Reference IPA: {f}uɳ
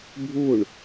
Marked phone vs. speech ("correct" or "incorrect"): incorrect